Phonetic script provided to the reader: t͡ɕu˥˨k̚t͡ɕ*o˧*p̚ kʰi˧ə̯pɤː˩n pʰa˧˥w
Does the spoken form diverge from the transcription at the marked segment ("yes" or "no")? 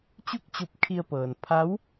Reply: no